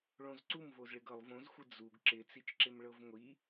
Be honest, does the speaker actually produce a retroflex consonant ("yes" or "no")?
yes